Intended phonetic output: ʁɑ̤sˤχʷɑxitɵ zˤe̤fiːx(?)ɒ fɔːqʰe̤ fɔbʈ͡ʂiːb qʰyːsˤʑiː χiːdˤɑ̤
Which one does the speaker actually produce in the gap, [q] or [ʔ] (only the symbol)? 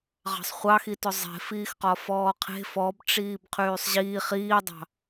q